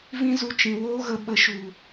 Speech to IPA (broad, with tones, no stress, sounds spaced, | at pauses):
v ĩ˦ z u˧ t͡ʃ ĩ˨ w oː˦ ɣ ə˧ ɓ ə˨˦ ʃ u˨